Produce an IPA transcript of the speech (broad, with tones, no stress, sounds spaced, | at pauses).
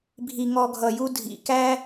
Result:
bʱ i˧ ŋ ɔ˧ ɡʱ ʌ˨ j u˧ dʱ ḭ˨ k æ˦